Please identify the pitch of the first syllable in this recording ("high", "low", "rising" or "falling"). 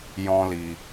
high